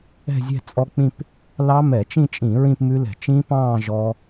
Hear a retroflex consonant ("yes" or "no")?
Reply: no